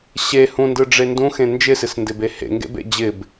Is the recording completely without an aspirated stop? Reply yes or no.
yes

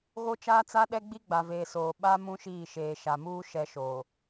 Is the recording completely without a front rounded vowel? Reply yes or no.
yes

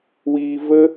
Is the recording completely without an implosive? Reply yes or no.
yes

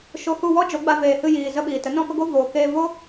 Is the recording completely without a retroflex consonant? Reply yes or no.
yes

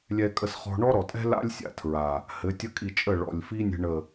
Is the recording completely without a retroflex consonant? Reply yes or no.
no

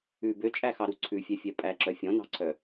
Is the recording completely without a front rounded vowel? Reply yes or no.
no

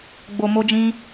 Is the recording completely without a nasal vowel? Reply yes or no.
no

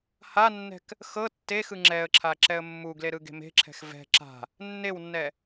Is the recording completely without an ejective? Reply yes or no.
yes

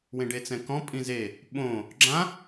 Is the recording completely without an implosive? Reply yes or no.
no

